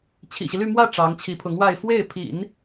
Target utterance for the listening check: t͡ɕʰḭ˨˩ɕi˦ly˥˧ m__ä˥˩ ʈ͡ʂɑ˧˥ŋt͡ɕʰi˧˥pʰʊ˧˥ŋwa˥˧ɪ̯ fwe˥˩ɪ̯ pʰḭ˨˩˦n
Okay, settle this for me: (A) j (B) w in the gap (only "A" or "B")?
B